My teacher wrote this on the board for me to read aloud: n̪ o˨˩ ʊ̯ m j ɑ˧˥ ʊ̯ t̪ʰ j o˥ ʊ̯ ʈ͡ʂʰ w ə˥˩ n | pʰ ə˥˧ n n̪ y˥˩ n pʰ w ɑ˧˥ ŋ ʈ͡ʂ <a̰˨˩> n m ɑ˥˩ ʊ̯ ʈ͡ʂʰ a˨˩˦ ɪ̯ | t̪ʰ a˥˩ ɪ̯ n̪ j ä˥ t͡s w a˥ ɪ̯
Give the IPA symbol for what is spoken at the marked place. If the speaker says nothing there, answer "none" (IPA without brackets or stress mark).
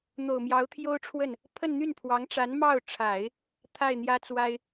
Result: a˧˥